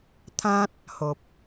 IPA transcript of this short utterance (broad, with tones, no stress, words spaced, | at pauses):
t̪ʰã˦t̚ | ho˨p̚